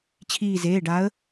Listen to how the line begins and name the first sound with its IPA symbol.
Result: t͡ɕʰ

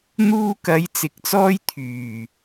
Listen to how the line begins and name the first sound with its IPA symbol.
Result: n̪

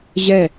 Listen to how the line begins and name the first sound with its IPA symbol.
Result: ʑ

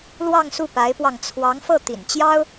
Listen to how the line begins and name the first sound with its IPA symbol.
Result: l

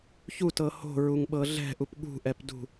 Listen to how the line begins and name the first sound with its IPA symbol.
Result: ç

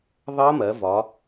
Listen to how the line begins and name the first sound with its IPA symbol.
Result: ðˤ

